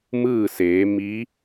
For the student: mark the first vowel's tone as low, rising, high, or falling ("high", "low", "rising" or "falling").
falling